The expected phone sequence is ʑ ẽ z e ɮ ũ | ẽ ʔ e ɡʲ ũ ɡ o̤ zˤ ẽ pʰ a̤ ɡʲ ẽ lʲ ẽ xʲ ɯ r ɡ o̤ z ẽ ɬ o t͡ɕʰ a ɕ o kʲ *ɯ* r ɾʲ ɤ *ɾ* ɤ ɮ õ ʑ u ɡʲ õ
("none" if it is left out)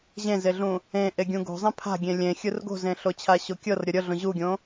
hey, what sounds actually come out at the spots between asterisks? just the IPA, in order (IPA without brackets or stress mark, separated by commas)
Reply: ɤ, ɾʲ